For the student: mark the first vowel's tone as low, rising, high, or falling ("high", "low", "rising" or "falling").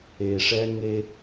low